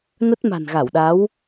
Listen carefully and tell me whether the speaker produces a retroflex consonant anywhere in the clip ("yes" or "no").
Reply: no